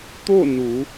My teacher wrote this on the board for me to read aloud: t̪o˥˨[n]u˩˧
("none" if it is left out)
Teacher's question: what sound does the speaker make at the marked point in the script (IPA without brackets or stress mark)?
n